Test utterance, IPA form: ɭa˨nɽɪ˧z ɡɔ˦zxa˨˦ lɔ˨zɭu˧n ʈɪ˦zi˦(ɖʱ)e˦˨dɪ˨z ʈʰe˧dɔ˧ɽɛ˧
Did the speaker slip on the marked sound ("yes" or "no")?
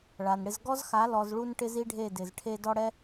no